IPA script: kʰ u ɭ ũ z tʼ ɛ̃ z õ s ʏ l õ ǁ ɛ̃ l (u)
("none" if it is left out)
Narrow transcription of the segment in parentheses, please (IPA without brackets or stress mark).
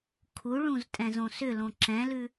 ʉ